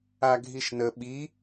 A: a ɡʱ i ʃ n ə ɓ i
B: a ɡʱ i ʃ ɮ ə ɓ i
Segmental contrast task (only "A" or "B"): A